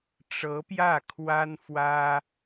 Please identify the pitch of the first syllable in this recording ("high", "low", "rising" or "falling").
rising